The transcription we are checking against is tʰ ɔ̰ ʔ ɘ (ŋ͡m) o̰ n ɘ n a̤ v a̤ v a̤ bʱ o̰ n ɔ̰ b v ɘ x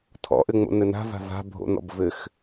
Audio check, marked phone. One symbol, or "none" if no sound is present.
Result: ŋ͡m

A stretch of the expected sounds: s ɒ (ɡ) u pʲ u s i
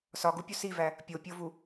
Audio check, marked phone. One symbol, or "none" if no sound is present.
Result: ɡ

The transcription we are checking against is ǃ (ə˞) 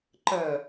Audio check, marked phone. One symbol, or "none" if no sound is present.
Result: ɐ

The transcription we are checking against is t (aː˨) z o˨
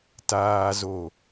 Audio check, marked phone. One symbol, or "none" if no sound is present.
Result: aː˨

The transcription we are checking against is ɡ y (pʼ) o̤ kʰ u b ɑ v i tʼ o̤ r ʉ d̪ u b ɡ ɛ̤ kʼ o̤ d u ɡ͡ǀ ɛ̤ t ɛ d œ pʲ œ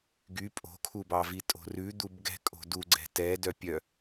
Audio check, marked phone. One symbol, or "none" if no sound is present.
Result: pʼ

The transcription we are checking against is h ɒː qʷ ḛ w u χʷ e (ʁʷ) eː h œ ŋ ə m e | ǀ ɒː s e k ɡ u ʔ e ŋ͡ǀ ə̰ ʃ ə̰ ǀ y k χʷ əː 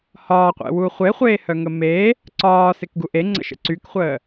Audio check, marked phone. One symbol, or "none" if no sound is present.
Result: χʷ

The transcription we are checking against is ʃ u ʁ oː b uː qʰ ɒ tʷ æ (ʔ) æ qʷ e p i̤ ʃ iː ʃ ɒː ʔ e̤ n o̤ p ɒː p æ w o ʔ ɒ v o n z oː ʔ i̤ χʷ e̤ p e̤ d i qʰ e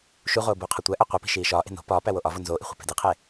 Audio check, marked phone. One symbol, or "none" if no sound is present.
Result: ʔ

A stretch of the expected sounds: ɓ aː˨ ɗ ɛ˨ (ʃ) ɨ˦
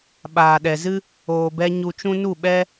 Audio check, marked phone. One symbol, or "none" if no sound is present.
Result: z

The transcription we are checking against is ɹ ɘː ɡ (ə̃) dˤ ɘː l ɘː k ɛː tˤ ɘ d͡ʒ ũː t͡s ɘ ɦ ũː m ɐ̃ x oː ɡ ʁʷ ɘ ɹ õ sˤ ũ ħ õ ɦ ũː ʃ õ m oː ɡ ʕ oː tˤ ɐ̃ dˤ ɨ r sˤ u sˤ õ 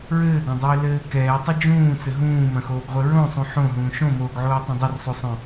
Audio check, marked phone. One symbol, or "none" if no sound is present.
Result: ɐ̃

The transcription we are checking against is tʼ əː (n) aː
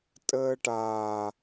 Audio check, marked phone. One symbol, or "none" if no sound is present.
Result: ʈ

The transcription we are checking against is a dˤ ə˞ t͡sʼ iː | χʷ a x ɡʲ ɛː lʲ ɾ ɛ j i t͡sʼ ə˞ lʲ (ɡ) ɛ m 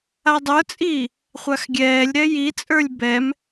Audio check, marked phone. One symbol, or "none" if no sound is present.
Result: b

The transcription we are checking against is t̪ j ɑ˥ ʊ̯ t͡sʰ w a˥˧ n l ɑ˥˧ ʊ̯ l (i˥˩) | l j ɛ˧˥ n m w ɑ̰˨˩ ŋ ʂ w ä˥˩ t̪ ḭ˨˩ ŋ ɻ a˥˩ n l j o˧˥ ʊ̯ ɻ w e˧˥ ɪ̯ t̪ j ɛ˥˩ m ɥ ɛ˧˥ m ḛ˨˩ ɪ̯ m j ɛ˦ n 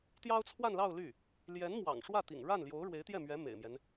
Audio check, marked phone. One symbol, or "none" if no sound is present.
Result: y˥˩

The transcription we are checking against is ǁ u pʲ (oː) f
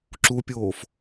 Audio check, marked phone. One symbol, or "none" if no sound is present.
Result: oː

